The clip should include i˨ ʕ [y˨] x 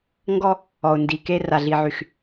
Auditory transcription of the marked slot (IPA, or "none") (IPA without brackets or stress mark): y˨